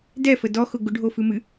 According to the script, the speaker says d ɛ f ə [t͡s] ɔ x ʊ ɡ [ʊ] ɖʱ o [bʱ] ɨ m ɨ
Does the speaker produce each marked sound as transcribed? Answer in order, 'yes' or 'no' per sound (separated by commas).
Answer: no, yes, no